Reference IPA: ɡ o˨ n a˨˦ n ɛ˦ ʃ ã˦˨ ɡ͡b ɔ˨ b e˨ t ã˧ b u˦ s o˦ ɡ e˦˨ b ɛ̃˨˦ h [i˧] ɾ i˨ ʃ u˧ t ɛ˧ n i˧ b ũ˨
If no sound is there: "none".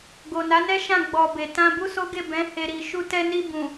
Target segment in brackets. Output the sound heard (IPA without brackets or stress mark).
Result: e˧